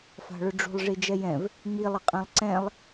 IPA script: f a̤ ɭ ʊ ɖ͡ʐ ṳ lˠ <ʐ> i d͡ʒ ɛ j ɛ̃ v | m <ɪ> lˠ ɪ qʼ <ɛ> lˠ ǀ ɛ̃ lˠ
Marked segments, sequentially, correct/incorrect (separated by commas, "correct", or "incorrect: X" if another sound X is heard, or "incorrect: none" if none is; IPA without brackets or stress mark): correct, incorrect: i, incorrect: ɛ̃